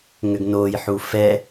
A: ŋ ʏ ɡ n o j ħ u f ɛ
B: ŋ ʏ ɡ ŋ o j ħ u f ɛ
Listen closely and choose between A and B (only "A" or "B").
A